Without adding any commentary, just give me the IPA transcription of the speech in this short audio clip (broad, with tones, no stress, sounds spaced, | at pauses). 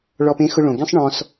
ɭ ɔ˧ p ẽ˧˥ x ʊ˧ ɭ õ˩ ɡ ẽ˥ sˤ ɳ ɔ̃˧ s